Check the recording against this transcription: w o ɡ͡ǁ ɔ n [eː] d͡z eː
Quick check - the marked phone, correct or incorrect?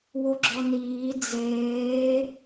incorrect